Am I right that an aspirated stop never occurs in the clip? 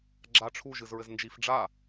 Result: no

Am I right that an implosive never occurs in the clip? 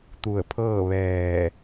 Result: yes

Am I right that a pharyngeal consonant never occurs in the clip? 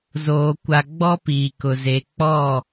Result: yes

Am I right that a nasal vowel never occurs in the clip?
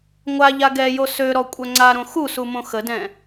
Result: no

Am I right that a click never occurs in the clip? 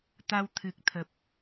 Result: yes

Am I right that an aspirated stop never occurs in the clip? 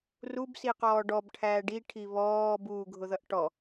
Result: no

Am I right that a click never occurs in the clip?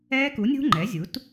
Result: no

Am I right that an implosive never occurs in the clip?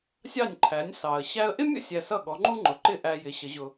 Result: no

